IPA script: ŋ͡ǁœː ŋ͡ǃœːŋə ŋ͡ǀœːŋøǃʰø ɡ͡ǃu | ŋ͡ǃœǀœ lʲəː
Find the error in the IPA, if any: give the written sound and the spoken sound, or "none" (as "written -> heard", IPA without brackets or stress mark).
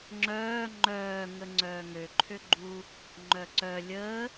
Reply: none